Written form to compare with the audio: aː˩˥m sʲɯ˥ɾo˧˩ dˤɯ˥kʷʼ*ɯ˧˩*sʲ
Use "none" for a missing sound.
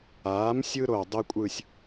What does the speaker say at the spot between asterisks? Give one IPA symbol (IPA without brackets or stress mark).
ɯ˥˨